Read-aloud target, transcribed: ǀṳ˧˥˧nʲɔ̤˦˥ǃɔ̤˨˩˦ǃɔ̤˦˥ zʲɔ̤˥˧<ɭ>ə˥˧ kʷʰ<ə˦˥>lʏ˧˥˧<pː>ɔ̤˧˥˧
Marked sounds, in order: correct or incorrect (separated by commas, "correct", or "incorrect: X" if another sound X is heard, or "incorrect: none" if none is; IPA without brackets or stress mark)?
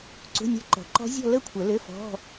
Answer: incorrect: l, incorrect: ə˨˩˦, incorrect: f